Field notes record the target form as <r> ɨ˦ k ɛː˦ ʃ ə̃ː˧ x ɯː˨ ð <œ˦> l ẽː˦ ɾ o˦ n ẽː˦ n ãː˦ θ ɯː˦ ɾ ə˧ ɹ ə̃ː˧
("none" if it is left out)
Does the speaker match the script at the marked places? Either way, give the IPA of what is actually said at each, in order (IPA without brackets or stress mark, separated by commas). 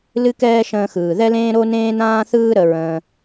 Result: l, ɛ˦